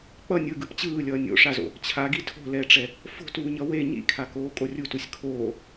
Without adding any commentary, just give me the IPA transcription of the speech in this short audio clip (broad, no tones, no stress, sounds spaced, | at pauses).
k͡p ʌ nʲ ɯ ɡ ɯ p t͡ɕ ɯː lʲ ʌː nʲ o̰ ʂ a z o̰ | t͡ɕʰ a ɡ i tʰ o̤ l ɛ ʈ͡ʂ ɛ | f o̤ t uː ɲ ʌ w e ɲ ḭ kʰ a k oː kʼ o rʲ u t u sʲ kʰ oː